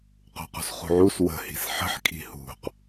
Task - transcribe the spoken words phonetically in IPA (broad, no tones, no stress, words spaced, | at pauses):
qṳqṳsχṳʕus wə̤ hi̤sħə̤ħ kʼi̤hṳq